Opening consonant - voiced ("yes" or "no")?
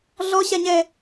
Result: yes